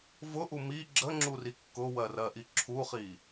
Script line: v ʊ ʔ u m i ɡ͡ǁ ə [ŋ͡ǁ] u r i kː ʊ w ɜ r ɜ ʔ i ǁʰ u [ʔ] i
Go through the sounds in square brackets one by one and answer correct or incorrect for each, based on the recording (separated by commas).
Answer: correct, incorrect